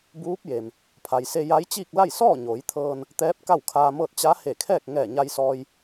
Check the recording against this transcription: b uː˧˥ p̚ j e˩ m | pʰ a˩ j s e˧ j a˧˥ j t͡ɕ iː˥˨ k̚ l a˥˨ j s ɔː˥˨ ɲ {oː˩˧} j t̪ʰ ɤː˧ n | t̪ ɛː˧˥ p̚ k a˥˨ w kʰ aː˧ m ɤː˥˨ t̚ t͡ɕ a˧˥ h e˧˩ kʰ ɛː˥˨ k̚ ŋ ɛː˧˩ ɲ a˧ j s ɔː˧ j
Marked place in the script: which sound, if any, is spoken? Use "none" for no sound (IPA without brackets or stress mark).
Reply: oː˩˧